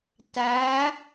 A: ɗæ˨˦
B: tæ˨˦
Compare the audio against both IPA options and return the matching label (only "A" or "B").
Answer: B